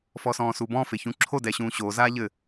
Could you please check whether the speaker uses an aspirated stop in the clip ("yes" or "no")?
yes